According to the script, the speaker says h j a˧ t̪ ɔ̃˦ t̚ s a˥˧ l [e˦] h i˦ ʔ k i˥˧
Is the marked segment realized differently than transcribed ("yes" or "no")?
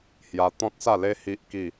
no